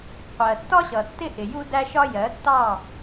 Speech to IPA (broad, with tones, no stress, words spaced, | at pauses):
qʷɜ˨ tːɒ˦ɕʌ˨ tːɪ˦ʔɪ˨ju˦dæ˦ ʃɒ˦jɜ˨˦tːɑ˦˨